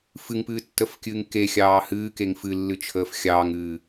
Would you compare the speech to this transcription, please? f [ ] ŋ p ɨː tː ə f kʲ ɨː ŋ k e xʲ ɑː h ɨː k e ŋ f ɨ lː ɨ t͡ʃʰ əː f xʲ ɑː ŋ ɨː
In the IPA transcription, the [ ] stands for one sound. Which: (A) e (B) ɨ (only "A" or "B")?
B